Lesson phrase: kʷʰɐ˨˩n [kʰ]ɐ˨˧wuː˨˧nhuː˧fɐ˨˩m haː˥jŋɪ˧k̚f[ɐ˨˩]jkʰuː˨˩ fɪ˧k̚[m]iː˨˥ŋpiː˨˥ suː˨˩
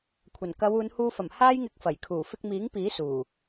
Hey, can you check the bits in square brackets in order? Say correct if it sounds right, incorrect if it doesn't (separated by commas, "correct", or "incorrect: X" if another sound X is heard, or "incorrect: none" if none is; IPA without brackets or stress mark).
incorrect: k, correct, correct